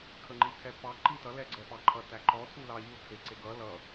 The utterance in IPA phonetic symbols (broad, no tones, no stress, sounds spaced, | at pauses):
kʰ ə ŋ͡ǃ i tʰ ɛ p ɑ ǃ i t ʌ l ɛ ɡ͡ǀ ɛ p ɑ ǃʰ ʌ t æ ǃ ɔ tʰ u l ɑ ʎ u tʰ e ǀ e ɡ ʌ l ʌ